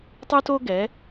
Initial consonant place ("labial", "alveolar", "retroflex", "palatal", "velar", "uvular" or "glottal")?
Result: alveolar